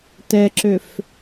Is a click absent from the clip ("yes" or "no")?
no